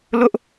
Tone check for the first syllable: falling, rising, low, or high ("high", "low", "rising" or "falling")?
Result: high